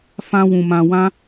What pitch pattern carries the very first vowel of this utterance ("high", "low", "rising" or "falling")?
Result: high